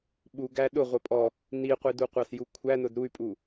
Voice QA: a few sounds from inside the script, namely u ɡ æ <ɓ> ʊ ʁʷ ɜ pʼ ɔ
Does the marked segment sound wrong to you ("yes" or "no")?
yes